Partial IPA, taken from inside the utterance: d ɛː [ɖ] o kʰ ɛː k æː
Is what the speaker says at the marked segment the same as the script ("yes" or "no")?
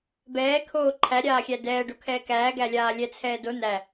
yes